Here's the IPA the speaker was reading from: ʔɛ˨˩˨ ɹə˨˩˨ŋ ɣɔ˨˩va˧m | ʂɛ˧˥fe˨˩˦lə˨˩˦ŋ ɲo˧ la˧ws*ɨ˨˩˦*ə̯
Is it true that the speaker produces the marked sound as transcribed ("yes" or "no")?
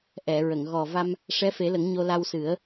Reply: yes